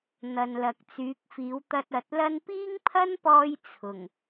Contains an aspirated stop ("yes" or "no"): yes